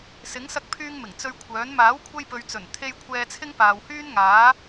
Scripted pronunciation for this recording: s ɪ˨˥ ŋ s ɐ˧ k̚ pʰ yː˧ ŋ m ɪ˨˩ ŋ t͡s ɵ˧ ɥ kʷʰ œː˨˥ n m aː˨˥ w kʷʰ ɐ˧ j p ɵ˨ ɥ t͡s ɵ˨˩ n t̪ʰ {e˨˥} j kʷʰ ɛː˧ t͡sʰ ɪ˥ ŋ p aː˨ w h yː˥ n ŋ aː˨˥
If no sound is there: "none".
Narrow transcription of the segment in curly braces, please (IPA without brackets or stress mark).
e˧